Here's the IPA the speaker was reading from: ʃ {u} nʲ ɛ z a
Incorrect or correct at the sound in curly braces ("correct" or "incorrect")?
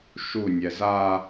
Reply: correct